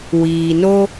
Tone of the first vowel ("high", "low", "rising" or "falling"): low